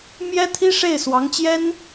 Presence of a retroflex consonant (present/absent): present